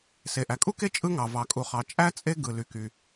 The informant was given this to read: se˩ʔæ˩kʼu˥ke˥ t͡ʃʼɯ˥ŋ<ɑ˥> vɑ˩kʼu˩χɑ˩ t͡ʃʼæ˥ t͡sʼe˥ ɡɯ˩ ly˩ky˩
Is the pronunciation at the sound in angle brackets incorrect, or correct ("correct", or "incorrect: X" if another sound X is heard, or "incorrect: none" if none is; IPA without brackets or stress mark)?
incorrect: ɑ˩